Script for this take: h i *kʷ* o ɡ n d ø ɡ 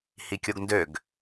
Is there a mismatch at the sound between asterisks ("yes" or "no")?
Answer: yes